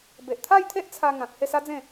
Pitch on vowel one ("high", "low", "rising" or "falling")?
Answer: low